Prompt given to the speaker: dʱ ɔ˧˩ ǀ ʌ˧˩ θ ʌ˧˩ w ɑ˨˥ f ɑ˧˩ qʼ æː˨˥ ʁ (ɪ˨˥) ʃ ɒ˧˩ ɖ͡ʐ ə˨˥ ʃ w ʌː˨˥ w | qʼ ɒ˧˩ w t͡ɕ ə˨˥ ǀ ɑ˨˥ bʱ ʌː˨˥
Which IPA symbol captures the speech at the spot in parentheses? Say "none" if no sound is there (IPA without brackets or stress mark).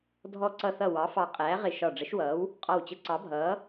ɪ˧˩